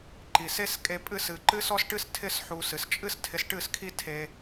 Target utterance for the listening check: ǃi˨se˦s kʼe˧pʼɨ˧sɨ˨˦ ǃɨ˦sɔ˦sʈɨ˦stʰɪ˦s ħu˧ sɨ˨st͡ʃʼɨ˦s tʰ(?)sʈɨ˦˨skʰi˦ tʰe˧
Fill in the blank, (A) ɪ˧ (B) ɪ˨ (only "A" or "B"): A